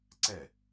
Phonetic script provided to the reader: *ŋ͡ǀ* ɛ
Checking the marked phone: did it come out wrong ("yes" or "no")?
yes